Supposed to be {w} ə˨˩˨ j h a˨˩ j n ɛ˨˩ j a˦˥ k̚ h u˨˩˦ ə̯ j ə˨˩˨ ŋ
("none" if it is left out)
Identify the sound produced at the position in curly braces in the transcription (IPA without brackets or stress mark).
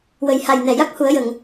w